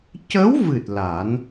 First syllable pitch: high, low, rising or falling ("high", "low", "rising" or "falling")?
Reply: rising